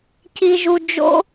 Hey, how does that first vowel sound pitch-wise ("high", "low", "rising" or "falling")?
low